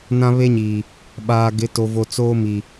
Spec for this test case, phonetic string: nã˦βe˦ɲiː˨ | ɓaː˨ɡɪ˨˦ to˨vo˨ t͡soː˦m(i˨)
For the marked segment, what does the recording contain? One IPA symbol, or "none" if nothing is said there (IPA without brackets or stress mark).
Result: i˨